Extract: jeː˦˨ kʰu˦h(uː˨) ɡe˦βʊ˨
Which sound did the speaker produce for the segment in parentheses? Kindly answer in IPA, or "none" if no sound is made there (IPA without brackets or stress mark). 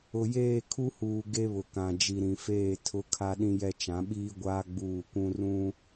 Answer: uː˨